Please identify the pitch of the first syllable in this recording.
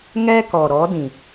high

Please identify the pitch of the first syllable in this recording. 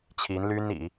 rising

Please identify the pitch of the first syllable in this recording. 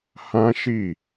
high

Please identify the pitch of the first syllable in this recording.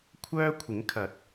high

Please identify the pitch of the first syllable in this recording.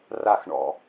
falling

